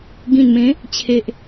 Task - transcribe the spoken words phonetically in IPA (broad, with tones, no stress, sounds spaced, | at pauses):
ɡ ĩ˨˩ n m ẽ˨˦ | t͡ɕʰ e˨ ʔ